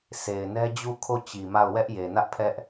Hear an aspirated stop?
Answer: yes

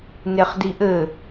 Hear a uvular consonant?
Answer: yes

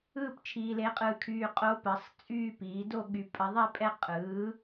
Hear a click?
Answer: no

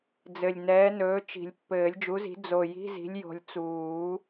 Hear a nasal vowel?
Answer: no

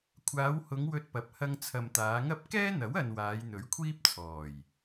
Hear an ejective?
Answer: no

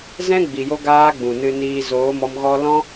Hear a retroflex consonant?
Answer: no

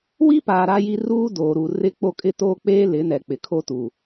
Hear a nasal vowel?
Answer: no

